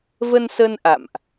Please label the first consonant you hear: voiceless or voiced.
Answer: voiced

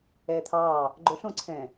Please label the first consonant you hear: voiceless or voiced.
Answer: voiceless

